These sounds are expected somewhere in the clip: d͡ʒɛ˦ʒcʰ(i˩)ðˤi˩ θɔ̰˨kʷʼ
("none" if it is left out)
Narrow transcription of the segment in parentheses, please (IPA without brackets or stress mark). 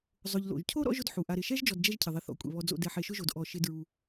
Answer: ɪ˩